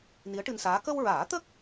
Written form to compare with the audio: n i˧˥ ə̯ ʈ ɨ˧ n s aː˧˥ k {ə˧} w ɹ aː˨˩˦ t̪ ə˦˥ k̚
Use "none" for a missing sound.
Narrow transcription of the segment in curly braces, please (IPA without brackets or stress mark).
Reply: ə˧